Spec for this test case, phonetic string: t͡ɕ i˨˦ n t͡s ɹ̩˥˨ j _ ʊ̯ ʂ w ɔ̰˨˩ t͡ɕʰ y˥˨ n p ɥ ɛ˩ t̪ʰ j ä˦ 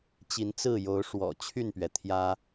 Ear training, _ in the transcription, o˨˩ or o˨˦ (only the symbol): o˨˦